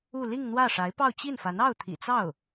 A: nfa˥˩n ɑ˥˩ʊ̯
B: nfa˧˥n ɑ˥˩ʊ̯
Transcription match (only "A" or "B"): B